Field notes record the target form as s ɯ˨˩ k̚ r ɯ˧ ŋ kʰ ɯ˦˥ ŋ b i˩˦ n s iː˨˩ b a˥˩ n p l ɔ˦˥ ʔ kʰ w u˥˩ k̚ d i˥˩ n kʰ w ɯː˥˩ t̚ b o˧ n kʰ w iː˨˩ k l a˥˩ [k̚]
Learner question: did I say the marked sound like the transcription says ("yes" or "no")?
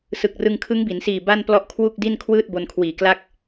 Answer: yes